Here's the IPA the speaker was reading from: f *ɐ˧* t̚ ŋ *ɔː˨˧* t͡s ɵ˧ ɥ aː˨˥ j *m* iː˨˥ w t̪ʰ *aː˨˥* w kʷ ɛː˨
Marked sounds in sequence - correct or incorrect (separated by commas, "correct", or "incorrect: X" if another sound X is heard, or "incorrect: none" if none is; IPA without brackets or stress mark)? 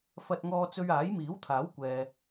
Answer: correct, incorrect: ɔː˧, correct, correct